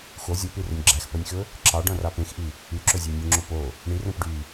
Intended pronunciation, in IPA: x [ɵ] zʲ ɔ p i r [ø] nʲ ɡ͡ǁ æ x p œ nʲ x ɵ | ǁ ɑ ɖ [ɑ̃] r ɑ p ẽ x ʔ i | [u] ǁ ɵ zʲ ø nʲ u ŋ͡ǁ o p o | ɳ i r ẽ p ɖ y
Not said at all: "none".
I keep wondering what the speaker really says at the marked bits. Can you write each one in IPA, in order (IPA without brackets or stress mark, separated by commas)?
o, ɵ, ɔ̃, y